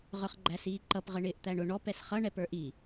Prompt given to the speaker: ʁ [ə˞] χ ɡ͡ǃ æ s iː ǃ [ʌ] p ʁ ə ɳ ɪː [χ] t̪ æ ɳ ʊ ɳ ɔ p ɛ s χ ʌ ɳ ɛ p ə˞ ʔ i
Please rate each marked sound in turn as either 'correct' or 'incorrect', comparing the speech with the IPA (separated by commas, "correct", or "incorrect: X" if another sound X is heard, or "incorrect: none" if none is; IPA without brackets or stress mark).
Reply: correct, correct, incorrect: ʔ